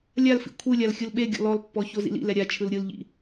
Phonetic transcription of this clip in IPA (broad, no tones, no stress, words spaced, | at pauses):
lʲalfḭ kʷʰɯlʲal xʲɯlɓeɡʲɔ̰ lɔlpːɔ çozḭlḭlɛ ɾʲat͡ʃʰɯl ɾʲɯlʎḭ